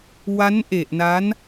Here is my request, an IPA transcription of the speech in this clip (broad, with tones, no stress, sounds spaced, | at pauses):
w a˦˥ n ʔ e˨˩ ʔ n a˦˥ n